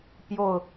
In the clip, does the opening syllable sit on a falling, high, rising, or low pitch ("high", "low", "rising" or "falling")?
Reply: falling